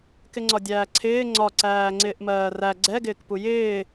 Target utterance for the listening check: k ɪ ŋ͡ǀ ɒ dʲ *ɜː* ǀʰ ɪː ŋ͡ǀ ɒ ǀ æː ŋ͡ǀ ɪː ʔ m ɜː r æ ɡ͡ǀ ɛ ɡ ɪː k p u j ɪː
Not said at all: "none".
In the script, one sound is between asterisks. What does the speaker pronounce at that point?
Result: æː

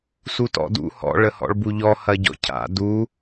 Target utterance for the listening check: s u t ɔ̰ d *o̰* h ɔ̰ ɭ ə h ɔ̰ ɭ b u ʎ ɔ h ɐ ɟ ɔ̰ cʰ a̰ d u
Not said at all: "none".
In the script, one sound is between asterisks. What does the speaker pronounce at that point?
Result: ṵ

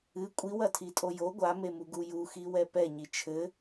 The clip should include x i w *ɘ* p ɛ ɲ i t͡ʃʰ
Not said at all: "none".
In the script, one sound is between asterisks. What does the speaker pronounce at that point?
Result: ɛ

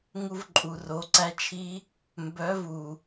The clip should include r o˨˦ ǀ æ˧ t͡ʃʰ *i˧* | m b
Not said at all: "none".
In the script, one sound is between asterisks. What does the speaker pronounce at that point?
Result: i˧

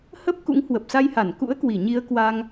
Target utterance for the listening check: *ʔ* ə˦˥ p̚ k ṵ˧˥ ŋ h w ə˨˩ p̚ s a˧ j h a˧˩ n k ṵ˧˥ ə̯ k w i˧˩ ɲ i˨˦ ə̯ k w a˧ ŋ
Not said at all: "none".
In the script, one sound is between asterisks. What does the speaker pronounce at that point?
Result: h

